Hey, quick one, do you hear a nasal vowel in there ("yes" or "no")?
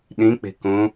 yes